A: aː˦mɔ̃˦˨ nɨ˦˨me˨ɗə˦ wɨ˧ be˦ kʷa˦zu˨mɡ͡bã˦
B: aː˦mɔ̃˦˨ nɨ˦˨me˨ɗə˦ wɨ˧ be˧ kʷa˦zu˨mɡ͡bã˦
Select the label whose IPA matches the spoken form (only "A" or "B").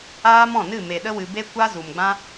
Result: A